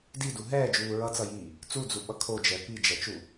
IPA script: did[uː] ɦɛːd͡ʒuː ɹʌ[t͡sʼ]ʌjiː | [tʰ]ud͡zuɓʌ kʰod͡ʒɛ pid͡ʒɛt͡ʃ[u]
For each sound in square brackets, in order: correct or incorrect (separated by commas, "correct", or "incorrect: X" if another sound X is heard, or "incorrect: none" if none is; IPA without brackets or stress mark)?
incorrect: u, incorrect: t͡s, incorrect: t͡s, correct